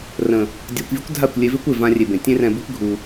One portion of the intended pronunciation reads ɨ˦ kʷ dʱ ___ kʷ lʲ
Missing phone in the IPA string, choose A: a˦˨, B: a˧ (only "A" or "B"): A